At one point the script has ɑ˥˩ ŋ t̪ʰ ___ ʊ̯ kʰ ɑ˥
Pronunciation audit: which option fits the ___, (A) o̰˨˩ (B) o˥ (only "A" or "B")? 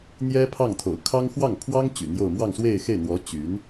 A